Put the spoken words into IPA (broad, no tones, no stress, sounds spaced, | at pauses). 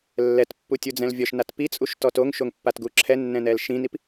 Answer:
lː ɛ t pː u tʲ u d͡z ɛ̃ l vʲ ɔ ʃ n a t p i t͡sʼ u ʃ t ɔ t o ŋ ʃ o ŋ pː a t ɡ u ǁʰ ɛ nː ɛ̃ n ɛ l ʃ ĩ n i p